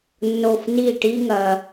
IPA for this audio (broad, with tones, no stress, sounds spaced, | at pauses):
nː o˥˩ f n i˥˩ ʈ i˥ ŋ ɐ˧